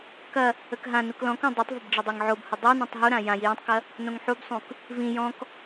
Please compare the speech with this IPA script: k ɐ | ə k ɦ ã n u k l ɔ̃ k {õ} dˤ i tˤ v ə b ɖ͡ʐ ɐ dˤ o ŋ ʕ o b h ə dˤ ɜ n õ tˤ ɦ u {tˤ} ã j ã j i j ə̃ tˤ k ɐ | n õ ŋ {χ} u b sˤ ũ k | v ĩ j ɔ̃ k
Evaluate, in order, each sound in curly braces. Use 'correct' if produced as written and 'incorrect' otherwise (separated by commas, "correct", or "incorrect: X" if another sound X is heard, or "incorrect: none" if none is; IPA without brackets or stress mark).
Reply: correct, incorrect: ɾ, incorrect: ħ